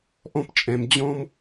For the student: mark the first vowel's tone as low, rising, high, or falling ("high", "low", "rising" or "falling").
high